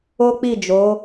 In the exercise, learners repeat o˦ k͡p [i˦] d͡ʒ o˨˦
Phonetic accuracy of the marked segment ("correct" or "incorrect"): incorrect